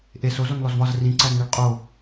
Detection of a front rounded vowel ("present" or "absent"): absent